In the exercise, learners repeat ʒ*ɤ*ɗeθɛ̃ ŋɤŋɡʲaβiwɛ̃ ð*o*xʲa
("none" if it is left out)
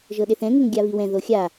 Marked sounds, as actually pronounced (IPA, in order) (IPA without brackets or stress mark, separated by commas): ɤ, o